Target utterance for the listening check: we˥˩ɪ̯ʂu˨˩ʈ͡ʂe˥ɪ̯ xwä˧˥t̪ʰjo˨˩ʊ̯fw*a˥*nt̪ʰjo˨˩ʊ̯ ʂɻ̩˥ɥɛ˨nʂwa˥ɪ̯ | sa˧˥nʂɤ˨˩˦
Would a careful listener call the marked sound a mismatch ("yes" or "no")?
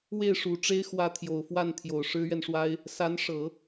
yes